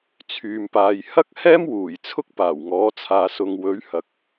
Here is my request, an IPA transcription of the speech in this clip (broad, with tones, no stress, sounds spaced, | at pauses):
t͡sʰ yː˨ m p aː˨ j h ɐ˥ k̚ h ɛː˥ m w uː˨˩ j t͡sʰ ʊ˥ k̚ p aː˨˩ w ŋ ɔː˨˥ t͡sʰ aː˨ s ʊ˨ ŋ w ɵ˨˥ ɥ h ɐ˨˥ k̚